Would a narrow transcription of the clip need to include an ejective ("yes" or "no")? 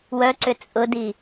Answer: yes